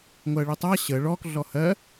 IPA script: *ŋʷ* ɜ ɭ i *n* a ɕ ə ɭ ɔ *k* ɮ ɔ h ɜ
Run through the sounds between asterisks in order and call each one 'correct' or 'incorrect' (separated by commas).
correct, incorrect, correct